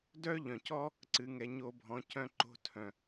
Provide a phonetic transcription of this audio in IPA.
dœ˥ʎœ̃˩cɔ˥ | ǀɨ˩˧ ŋɛ˩˧ɲo˧bʱɔ̃˩˧ cœ̃˧ǃo̤˧tʰœ̃˩

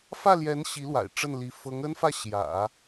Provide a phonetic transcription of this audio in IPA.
fä˥˩ljɛ˧˥n ɕi˧˥lwa̰˨˩ɪ̯ ʈ͡ʂə˥˩nli˧˥ fɤ˧˥ŋə˥nfä˥˩ ɕjä̰˨˩˦

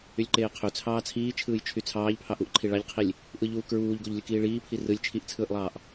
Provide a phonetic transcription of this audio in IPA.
ylʲǃeːqʰø t͡sʰɑːt͡sʰiː t͡ʃʰɯːjt͡ʃʰyt͡sʰɑːʎ pʰɑʔuʔǃʰi ɭɑʎqʰilʲ | ʔɯʎuː kɹuːʎɡoʎ lʲɯkiːɭiːpʰi rɯlʲ t͡ʃʰiʔt͡sʰɯːʔlˠɑːʔ

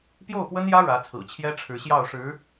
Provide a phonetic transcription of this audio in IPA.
pjo˥˩ʊ̯pwə˥njä˥ ɻä˧˥t͡sʰɹ̩˨˩t͡ɕʰjɛ˥ ʈ͡ʂʰɻ̩˧˥ɕjɑ˥˩ʊ̯ʂɻ̩˧˥

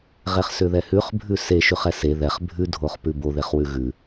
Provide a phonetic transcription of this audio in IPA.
ʁeχsʏðɛhʉχ bʱʉse ʃʉχɛse ðɛχ bʱʉ dʱoχpʉbo ðeχwʉɣʉ

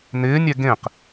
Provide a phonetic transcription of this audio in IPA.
nɪːnʲɛ ɡẽq

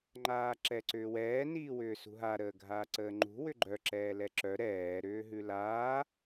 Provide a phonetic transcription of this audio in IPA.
ŋ͡ǃaːǁɛǀʏːwɛː niːwʏːsṳɦa ɾəːɡʱaːǀəːŋ͡ǃṳ wʏɡ͡ǃœ ǁɛːlɛǁœ ɾɛː ɾʏːɦʉlaː

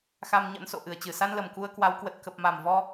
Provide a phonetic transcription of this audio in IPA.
xa˧mɲə̰˧˥nso̰˧˨ ʔɨ˧˩ə̯t͡ɕɨ˧˩sa˧nlə˨˩m ku˧ə̯kwa˨˦wkwə˨˩t̚ kə˨˩p̚ma˨˩mvɔ˧

